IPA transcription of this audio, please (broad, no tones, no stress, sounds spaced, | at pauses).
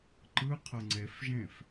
ǃ ɯ qʰ ɤ ŋ͡ǀ e f ʒ ẽ f